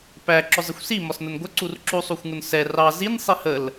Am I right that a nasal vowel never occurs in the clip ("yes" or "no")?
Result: yes